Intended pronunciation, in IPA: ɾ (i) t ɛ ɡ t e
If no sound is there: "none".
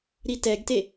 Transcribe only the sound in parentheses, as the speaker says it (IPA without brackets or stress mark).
i